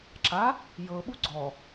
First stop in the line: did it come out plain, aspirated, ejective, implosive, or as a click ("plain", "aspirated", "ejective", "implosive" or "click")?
click